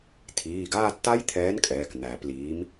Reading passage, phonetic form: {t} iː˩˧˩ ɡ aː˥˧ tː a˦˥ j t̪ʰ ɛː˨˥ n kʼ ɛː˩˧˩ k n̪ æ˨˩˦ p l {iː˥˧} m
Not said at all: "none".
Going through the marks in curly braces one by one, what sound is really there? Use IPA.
tʰ, iː˨˥

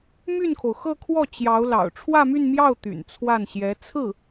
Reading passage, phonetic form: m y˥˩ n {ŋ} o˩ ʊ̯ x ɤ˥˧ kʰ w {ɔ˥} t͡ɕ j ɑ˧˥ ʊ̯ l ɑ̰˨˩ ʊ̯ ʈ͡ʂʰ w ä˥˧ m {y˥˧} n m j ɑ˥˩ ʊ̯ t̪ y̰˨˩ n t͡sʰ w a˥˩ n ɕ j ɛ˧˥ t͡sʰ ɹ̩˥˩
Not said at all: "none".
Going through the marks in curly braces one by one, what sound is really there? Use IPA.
kʰ, ɔ˥˩, y˥˧

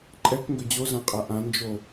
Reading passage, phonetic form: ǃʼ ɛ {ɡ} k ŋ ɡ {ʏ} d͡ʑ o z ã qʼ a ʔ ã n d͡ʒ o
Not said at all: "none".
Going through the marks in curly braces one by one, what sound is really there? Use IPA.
none, ʏ

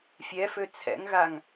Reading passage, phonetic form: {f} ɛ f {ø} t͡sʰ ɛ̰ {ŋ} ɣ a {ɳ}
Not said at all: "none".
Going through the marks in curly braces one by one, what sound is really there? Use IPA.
fʲ, ø, ŋ, ŋ

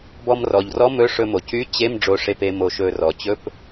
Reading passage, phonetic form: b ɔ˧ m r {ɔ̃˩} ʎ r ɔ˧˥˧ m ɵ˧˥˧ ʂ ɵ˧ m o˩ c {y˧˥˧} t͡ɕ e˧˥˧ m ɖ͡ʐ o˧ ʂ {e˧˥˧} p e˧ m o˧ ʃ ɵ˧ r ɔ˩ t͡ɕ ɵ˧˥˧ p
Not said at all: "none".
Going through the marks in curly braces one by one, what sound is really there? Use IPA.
ɔ˩, y˧˥˧, e˧

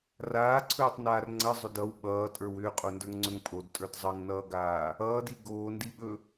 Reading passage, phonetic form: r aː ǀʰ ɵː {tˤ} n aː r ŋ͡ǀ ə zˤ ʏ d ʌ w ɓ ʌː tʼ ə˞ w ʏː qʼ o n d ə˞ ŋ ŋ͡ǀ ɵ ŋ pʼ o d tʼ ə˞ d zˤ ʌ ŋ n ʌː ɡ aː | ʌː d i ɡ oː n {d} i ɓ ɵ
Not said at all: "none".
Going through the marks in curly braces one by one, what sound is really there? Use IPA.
tˤ, d

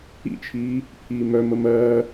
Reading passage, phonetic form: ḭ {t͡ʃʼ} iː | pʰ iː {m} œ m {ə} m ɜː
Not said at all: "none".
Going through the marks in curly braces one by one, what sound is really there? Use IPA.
t͡ʃʰ, m, ə

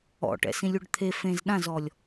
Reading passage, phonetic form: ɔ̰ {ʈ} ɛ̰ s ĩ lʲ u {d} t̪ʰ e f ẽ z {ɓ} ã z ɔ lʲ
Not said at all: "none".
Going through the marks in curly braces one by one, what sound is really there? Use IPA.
ʈ, ɖ, ɗ

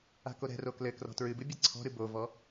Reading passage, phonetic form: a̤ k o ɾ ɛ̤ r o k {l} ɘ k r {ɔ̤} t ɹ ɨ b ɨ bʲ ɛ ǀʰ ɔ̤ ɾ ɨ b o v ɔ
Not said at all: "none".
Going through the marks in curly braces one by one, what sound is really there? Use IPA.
l, ɔ̤

